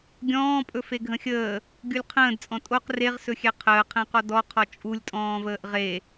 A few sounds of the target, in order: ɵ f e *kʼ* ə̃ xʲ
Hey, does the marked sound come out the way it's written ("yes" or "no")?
no